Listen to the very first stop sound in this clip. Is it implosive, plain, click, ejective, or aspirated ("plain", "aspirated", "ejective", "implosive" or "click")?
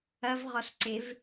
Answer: click